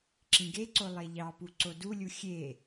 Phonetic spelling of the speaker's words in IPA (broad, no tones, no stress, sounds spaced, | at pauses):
ǁ ĩ ɡ e ǀ o lˠ e ʎ ɑ p u ǀ o d u lʲ u xʲ e